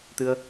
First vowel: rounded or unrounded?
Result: unrounded